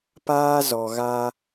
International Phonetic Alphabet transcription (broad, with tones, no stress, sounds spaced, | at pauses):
p aː˦ z ɔ˨ ɣ a˦